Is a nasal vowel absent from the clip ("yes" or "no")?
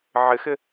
yes